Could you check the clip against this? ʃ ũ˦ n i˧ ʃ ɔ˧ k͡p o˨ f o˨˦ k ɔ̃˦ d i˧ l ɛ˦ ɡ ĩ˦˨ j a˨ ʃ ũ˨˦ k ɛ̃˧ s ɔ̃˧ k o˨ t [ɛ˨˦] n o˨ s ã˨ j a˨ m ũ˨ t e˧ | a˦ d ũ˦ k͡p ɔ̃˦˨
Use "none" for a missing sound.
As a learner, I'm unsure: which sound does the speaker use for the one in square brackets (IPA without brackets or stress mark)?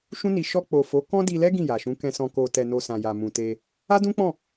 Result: ɛ˨